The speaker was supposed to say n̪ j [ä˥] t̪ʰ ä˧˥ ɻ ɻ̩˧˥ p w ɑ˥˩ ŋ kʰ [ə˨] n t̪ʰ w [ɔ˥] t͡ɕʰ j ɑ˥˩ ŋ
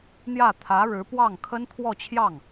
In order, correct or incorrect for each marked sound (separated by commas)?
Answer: incorrect, incorrect, incorrect